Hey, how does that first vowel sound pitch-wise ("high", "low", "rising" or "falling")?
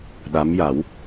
rising